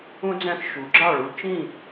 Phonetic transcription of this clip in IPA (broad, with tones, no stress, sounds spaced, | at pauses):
ũ˧ d͡z æ̃˧ x ʃ u˩˧ ɡ͡ǁ ɑ˥˨ ɭ u˧ t͡ʃ ĩ˥˨